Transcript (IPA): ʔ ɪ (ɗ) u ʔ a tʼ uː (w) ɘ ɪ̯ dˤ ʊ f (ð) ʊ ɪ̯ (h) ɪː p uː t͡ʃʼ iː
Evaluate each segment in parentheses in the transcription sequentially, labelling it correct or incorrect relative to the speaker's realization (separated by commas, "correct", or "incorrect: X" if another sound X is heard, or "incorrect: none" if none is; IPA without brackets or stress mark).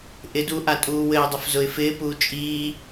incorrect: d, correct, incorrect: z, incorrect: f